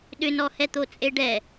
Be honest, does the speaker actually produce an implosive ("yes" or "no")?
yes